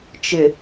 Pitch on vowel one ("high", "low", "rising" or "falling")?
low